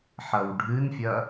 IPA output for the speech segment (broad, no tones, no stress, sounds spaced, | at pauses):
ħ ɐ w ɖʱ ɨ n fʲ ɐ